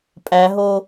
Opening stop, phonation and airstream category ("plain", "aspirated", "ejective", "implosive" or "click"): ejective